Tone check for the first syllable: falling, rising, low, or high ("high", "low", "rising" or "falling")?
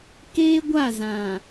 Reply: high